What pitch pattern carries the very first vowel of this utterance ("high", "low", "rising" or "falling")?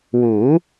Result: rising